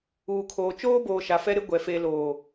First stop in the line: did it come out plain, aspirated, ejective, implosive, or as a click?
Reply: aspirated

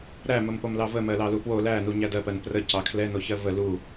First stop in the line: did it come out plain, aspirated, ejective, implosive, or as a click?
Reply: plain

